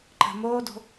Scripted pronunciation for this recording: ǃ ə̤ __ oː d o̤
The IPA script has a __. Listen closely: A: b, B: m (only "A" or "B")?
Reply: B